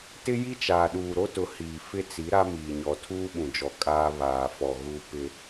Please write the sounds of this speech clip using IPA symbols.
t ɪ˦ j i˦ t͡ʃ aː˨ ɗ uː˨ ɾ o˦ t ʊ˨˦ h iː˨ f ɪ˦ t͡s i˨˦ ɾ a˦ m iː˨ ɲ ɔ˨ tʰ uː˦ ɓ ũ˨ d͡ʒ ɔ˨ kʼ aː˦ β aː˨ f ɔ˨ ɣ u˦ p ɪ˦

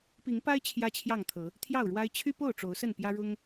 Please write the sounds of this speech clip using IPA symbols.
p i˨˦ ŋ p a˦ ɪ̯ t͡ɕʰ j ä˦ t͡ɕʰ j ɑ˥˨ ŋ t̪ʰ ɤ˨˦ | t̪ʰ j ɑ˥˨ ʊ̯ ɻ w a˦ ɪ̯ t͡ɕʰ y˦ p o˥˨ ʊ̯ ʈ͡ʂ o˨˦ ʊ̯ s ə˥˨ n p j ä˦ ɻ ʊ˦ ŋ

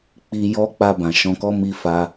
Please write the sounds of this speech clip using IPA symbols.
k͡p i˧ j ɔ˦ k͡p a˧ b ã˨ ʃ ɔ̃˧ k ɔ˦ m i˧ f a˧

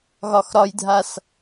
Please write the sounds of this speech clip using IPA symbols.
ɣ ɒ x ɾ ɒ j dʱ a s

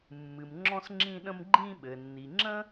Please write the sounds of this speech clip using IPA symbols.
mː ɨ˩ m ŋ͡ǁ ɔ̃˧ s ŋ͡ǁ ĩ˧ ɗ ə̃˧ m ɡ͡ǃ ĩ˧ ɓ ɘ˩ nː i˩ ŋ͡ǁ ə̃˥

